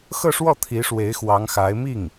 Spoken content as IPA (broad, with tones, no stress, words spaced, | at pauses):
xɤ˥˧ʂwɔ˥˩ t̪ʰi˧˥ʂwe˧˥ɪ̯ xwɑ˧˥ŋxa˧˥ɪ̯ mi˥˩ŋ